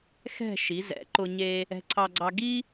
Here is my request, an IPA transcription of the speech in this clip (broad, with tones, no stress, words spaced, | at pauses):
xɛ̤˥˧ ʃi˩˧zɛ̰˩˧ ǃʊ˧ ɲe˧ | ɛ̤˧ǀʰɑ˧ɡ͡ǀɑ˧ ɡi˥